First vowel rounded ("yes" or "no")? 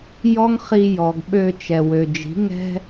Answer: yes